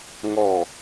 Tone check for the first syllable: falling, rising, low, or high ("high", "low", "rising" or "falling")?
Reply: low